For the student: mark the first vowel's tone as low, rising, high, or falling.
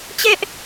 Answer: high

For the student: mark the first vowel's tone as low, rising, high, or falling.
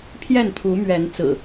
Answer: falling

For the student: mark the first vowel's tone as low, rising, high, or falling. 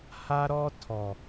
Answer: high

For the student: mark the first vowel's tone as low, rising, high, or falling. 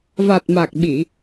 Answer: low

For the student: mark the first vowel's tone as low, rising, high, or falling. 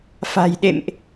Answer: low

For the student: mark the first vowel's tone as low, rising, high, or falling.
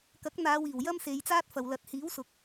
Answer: rising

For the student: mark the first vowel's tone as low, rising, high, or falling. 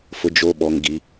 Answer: low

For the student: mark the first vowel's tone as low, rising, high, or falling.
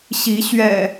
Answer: rising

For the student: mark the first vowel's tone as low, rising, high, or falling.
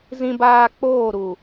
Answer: high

